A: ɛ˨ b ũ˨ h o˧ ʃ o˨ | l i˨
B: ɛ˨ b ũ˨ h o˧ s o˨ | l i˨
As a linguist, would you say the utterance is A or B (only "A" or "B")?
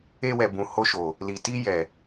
A